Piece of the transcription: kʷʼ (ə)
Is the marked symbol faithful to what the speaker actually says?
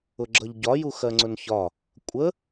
yes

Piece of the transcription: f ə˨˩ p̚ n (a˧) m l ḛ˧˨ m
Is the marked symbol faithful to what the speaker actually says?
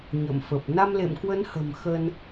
yes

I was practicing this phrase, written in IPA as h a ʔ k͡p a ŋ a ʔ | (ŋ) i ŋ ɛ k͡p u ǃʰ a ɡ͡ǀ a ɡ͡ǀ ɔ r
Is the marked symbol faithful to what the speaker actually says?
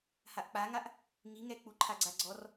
yes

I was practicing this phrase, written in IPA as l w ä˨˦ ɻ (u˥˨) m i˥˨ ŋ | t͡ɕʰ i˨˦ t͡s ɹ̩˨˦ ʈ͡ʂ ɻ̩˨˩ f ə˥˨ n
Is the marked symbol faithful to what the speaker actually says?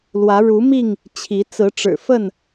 no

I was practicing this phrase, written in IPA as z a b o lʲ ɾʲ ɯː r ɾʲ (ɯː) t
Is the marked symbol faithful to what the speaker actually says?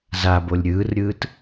yes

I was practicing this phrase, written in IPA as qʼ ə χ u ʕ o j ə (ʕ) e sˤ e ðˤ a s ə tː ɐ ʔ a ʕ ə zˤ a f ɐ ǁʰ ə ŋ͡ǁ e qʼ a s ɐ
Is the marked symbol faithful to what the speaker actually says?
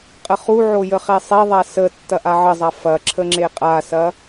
no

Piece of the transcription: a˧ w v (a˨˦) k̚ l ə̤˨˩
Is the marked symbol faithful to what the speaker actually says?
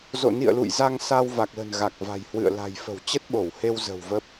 no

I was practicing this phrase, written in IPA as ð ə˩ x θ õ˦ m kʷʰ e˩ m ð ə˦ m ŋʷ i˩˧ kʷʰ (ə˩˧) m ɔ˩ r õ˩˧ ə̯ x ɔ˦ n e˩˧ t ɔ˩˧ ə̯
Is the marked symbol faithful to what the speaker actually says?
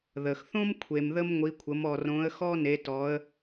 yes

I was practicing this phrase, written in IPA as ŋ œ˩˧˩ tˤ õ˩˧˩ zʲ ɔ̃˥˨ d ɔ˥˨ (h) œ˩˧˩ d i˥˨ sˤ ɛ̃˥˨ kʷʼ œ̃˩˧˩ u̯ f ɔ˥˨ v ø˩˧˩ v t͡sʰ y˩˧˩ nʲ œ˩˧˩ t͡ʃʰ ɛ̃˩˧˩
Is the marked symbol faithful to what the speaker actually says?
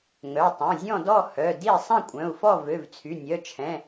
yes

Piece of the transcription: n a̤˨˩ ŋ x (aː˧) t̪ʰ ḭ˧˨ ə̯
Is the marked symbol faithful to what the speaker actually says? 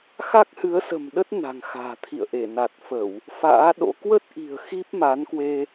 no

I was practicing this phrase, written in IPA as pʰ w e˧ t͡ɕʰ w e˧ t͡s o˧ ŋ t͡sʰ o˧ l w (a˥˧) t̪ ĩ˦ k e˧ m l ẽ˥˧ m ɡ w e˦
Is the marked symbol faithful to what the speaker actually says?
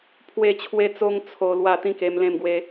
yes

